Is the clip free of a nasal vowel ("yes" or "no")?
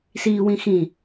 no